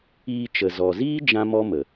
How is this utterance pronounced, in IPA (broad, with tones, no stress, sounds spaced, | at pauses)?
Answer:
iː˧ t͡ʃ ə˨ z ɔ˨ z iː˦ d͡ʒ ã˦ m ɔ˦ m ə˨